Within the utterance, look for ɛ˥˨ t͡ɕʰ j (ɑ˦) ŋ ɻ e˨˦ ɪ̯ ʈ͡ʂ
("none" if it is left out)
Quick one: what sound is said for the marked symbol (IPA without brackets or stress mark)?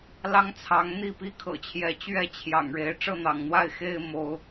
ɑ̰˨˩